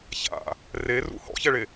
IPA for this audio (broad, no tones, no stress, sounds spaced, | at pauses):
ç a̰ | r e r ṵ h ɔ̰ ç ɛ ɭ e